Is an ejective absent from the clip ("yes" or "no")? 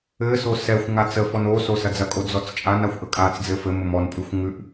no